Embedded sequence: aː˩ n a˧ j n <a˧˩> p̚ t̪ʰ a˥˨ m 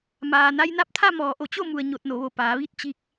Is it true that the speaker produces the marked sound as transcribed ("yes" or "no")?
no